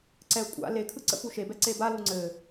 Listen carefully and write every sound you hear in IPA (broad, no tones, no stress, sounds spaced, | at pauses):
ǀ ɛ kʷʼ a̰ l e kʰ ɯ ǀ ə̰ p u ʃ e b ɛ ǀ e b a l u ŋ͡ǀ ɘ